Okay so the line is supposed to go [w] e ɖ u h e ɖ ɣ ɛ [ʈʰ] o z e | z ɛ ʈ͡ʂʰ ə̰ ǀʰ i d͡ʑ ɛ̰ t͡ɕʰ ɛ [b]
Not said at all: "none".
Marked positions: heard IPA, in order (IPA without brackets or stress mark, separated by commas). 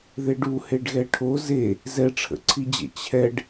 ð, ʈʰ, ɖ